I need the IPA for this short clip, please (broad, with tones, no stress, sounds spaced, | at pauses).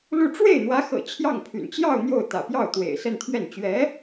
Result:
l u˥˧ ʈ͡ʂ w e˥˩ ɪ̯ n̪ w ä˧˥ x ɤ̰˨˩ t͡ɕʰ j ɑ˥˩ ŋ pʰ y̰˨˩ n t͡ɕ j ɑ˥˧ ʊ̯ n̪ j o˥˩ ʊ̯ t̪ ä̰˨˩ p j ɑ˥˩ ʊ̯ t̪ w ḛ˨˩ ɪ̯ s ə˥˧ n t̪ʰ ɥ ɛ˥˩ n t͡ɕ ɥ ɛ˧˥